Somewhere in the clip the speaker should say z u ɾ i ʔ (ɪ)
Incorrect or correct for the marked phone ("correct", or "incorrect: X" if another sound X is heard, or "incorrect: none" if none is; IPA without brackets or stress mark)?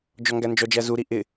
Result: correct